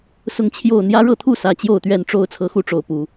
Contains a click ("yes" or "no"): no